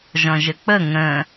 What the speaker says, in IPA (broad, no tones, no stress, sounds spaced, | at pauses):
ʒ ɔ̃ ʒ ə k͡p ə ŋ ə̃